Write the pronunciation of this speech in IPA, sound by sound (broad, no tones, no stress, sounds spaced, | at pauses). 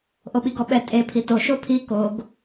ʔ o ɓ i ɡ ɔ ɓ ɛ tʼ e pʰ i t o ʃ o pʰ i k o ɡ